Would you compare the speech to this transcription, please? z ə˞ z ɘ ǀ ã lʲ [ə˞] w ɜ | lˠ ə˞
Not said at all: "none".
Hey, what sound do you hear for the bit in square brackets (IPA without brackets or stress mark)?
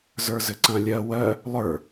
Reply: ɜ